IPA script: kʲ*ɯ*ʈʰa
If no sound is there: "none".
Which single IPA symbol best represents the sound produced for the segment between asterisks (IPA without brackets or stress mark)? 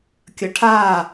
ə